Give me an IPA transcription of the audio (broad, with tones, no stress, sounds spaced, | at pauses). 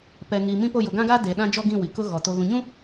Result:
p ɛ˨ ŋ iː˨ m ĩ˦ p o˦˨ j ʊ˨ ɡ ã˦ ɡ aː˦ d e˨ ɗ ã˦ d͡ʒ ɔ˦ ɡ ĩ˦˨ w i˨ k ʊ˦ ɣ ɔ˨ t o˨ ɣ ũ˨ ɲ ũ˦